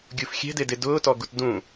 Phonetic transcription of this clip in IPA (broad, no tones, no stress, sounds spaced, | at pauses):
ɡʲ u f xʲ ɛ̤ d e d e d ʊː t ɔ ɡ u t d ũ